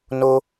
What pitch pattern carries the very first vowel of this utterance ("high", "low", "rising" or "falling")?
high